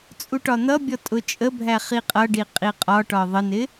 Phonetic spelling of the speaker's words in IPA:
t͡sʼ u ʈ ɒ n̪ ʌ bʲ ɔ tʼ ʊ t͡ʃʼ ə bʱ æ χ i qʼ ʌ ɖ i qʼ i qʼ ɒ ʈ ɒ ðˤ ə n ɪ

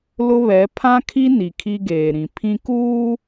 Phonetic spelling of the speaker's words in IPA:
l ʊ˦ β ɛ˨˦ pʰ ã˦ kʰ i˦ n i˨ kʰ i˦ ɡ eː˨ ɾ ĩ˨ pʰ ĩ˦ k uː˦

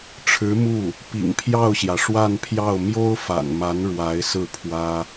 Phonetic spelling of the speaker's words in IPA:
ʈ͡ʂʰ ɻ̩˧˥ m u˥˩ | p ḭ˨˩ ŋ pʰ j ɑ˥˩ ʊ̯ ɕ j ä˩ ʂ w a˥˧ n pʰ j ɑ˥˩ ʊ̯ m j o˥ ʊ̯ f a̰˨˩ n m a˧˥ n ɻ w a˧˥ ɪ̯ s ɹ̩˥˩ pʰ w ä˥

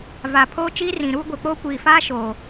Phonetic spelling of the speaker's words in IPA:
v a˨ pʰ oː˦ t͡ʃ iː˦ r ĩ˨ ɾ uː˦ ɡʷ e˨ k͡p oː˦ kʷ iː˨ f aː˦ ʃ oː˨

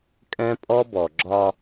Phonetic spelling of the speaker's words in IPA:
kʼ ɛ̃˦ pʼ ɔ˦ b ɔ˨ ɡ͡ǁ ɒ˦

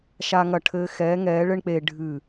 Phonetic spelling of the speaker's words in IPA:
ʃ a˧ ŋ ɐ˧˩ ʈʰ ɘː˧ x ɛː˨˥ ŋ ɛː˨˥ ɭ ɘ˥ ɳ k͡p eː˧ ɖʱ ɨ˧˩

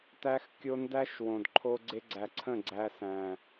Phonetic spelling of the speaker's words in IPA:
t æ˧ x kʲ o˧ n d æ˦ ʃ w õ˨ d ǃʰ o˦ ɡ͡ǀ e˧ ɡ͡ǀ æ˨ ǀʰ ə̃˦˨ ɡ͡ǀ æ˧ s æ̃˨

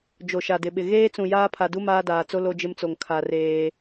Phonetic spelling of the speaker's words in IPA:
d͡ʒ o˨ ʃ a˨ d ɪ˨ ɓ ɪ˨ ɣ eː˦ t͡s ũ˨ j aː˦ pʰ a˨ d u˦ m aː˦ d aː˨ t͡s o˦ l o˦ d͡ʒ ɪ˦ m t͡s o˨ ŋ kʰ a˨ r eː˦

